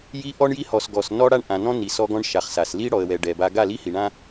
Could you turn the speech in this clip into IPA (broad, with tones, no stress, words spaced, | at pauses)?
ji˦ʔɔ˦ɳji˦ hɔ˨sɡɔ˨s nɔ˦ɽa˦ɳ ʔã˨nɔ̃˦ni˨ sɔ˦ɡɔ̃˦ɳʃa˨χsa˨s li˦ɽɔ˨ə̯wɛ˨ ɖɛ˨ba˦ ɡa˦˨li˦hi˨ɳã˦